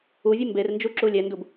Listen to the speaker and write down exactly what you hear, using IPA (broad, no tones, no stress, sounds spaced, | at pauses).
u vʲ e m b e r n d͡ʒ u ǁ u lʲ ɛ n d u b